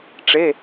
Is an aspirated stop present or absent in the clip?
absent